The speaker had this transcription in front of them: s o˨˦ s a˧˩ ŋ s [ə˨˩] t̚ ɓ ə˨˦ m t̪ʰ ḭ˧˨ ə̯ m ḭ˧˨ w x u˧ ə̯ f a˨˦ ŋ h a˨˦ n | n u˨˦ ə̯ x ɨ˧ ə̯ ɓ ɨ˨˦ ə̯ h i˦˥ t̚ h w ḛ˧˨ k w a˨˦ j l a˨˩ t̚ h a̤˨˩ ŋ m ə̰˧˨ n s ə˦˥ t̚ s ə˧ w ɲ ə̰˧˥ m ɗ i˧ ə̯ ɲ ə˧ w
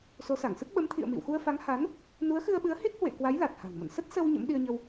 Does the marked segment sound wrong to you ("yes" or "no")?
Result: yes